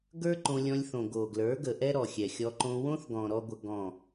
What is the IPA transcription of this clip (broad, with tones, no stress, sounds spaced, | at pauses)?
ɡ ə˞˦ ǃ õ˧ lʲ ɔ̃˧ lʲ θ õ˨ ɡ o˨ ɡ l ə˞˨˦ ɡ ə˨ ʔ ɛ˦ ɾ ɔ˨ xʲ ɛ˨ xʲ ɔ˧ ǃ õ˧ w õ˦ θ ɡ ɔ̃˨ ɾ ɔ˦ ɡʷ ə˧ ɡ ɔ̃˦˨